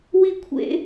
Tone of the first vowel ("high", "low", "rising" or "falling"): high